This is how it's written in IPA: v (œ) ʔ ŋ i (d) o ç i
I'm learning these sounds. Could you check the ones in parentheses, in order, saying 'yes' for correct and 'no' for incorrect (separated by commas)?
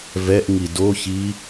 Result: no, yes